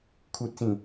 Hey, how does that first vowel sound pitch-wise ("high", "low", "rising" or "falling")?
low